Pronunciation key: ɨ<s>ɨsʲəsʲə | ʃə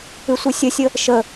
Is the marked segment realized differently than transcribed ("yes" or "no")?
yes